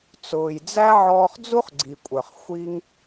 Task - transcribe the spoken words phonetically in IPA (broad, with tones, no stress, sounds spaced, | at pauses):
t͡s ʊː˨ j d͡z æ˦ ʕ ɔː˧ χ d͡z u˦ χ ɡ͡ǀ i˨ kʷʼ ə˞˨ χ xʷ i˦ ŋ